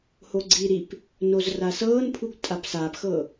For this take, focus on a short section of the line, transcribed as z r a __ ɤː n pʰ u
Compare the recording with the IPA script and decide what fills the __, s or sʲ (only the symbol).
s